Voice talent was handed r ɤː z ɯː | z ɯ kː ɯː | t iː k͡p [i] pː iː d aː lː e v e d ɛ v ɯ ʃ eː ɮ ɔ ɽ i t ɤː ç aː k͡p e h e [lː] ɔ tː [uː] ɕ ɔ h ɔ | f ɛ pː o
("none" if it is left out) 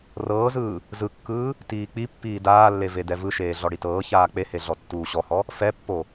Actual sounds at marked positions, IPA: i, ɮ, uː

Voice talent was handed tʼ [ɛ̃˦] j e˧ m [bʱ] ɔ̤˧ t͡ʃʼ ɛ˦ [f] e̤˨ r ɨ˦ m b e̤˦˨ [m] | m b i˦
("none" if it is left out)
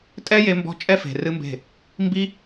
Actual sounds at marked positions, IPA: ɛ˦, b, f, none

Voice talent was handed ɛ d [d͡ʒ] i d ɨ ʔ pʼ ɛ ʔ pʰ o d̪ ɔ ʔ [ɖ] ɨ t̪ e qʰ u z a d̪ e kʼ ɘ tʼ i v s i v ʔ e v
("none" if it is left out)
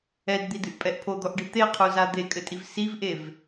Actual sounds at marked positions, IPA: d̪, ɖ

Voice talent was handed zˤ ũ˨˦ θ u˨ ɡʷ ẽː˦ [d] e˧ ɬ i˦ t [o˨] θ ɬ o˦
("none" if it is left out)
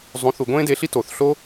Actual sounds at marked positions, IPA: d, o˨

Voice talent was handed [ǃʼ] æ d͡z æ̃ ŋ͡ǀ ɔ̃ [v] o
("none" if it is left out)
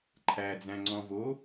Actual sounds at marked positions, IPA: ǃʰ, v

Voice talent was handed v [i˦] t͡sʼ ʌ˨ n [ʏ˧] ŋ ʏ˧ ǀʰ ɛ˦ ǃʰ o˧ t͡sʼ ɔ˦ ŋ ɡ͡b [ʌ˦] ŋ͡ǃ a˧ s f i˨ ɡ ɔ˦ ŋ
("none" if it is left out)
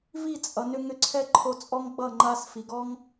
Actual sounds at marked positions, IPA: i˦˨, ʏ˧, ʌ˦˨

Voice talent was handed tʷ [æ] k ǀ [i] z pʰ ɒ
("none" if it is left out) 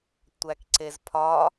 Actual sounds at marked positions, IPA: æ, e

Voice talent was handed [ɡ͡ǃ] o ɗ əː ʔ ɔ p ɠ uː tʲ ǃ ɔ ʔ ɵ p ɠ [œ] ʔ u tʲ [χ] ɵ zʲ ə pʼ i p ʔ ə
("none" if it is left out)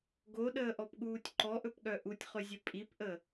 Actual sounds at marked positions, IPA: ɡ, œ, χ

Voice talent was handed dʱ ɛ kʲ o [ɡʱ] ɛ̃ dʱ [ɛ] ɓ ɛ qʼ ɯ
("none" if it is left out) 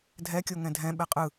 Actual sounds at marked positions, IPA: ŋ, ɛ̃

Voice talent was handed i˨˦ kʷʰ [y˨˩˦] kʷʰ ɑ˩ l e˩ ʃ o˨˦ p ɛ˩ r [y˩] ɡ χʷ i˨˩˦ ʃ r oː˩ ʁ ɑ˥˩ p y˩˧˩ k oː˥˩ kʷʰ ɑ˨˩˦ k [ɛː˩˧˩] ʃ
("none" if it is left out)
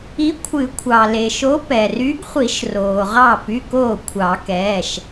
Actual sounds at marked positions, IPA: ɨ˨˩˦, y˨˦, ɛː˩˧˩

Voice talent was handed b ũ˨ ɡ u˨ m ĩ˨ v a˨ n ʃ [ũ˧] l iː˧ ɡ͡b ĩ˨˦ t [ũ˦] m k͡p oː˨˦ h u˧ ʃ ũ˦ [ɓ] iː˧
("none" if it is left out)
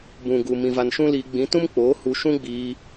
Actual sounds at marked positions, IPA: ũ˦, ũ˦, ɡ͡b

